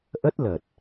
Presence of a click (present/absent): absent